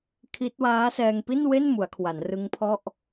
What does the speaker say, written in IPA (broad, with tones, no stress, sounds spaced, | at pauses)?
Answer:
kʰ i˦˥ t̚ w aː˦˥ s ɛː˧ ŋ p i˥˩ n w e˥˩ n m u˩˦ a̯ kʰ w a˩˦ n r ɯ˦˥ ŋ pʰ ɔ˥˩ ʔ